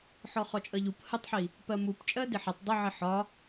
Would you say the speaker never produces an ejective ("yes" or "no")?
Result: no